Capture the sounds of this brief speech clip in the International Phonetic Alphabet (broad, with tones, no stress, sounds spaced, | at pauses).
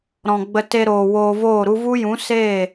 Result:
ɾ ɔ̃˨ ɡ͡b ə˧ t e˧ ɾ oː˨ w oː˧ v oː˦˨ ɾ u˦ v u˦ j ũ˨˦ s eː˦˨